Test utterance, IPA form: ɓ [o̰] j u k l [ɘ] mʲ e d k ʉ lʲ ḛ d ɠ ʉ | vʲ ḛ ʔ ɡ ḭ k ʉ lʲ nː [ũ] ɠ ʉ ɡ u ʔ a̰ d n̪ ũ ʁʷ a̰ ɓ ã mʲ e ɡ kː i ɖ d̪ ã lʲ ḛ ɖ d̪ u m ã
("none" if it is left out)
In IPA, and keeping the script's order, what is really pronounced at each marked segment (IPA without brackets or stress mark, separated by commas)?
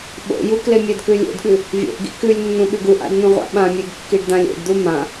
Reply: o̰, e, ũ